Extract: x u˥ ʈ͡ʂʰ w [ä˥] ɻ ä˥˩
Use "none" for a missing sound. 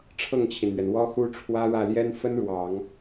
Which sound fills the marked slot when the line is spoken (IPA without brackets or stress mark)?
ä˥